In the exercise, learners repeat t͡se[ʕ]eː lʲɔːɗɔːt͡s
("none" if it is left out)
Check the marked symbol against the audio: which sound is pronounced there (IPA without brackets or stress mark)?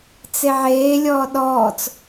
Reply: ʕ